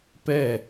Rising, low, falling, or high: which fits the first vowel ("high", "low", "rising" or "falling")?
falling